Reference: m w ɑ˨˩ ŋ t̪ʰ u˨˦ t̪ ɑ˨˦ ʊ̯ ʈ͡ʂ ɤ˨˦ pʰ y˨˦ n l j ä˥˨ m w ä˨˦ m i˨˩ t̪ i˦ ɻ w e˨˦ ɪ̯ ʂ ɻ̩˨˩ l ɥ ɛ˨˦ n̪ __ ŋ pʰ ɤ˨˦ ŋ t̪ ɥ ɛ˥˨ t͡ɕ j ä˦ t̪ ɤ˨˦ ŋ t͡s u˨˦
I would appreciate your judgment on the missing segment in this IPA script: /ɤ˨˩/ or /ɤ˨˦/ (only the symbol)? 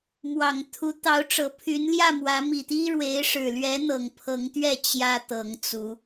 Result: ɤ˨˩